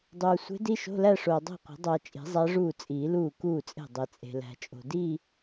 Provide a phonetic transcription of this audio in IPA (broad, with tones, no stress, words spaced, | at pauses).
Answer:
dˤuː˨ sʷe̤˧˥di˧˥˧ʃo̤˧˥˧læ˥˧ ʂoː˨dˤæ̤˥˩qʷe̤˨˩˦ dˤæ˨t͡ʃʼi̤˨˩˦ zˤæ˧˥ʐuː˥˩t͡sʼiː˨˩˦luː˥˩ kuː˥˩t͡sʼe̤˥˩ dˤe˨t͡sʼe̤˨ læ̤˨t͡ʃʼo̤˨ di˥˧